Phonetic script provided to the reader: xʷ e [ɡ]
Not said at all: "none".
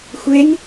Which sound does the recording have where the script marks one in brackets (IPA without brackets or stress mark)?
ŋ